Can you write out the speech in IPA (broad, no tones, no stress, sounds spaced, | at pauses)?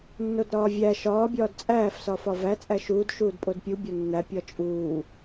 nː o d ɾ ɒː vʲ æ ʃ ɒː bʲ ɒː d t͡sʼ æː f s ɒː f ɒ v æ t͡sʼ æ ʃ uː d ʃ uː d pʼ o d pʲ u bʲ ɒ nː æ pʲ ɒ t͡ʃʼ uː